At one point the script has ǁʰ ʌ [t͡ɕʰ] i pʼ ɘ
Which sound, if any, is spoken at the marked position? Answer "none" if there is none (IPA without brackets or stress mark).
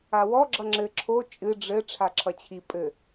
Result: t͡ɕʰ